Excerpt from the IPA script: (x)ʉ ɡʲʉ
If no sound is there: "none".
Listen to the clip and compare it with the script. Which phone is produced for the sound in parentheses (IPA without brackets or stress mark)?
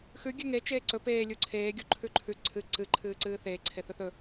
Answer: x